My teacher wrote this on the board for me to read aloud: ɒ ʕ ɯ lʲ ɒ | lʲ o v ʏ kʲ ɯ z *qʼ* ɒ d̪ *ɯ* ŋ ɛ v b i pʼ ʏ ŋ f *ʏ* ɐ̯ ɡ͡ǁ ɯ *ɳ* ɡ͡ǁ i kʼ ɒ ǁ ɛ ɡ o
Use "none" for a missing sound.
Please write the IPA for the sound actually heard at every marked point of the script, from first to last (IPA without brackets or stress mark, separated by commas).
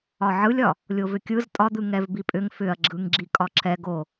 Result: tʼ, ɯ, ʏ, ŋ